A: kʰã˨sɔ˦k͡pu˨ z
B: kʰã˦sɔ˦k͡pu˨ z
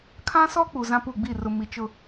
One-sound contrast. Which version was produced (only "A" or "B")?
B